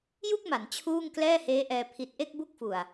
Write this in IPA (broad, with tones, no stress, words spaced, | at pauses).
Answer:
ju˥˩k̚ma˩˦n t͡ɕʰuː˥˩ŋ klɛː˥˩heː˦˥ʔɛː˧ pʰi˨˩t̚ʔe˥˩k̚ bu˥˩k̚fu˨˩a̯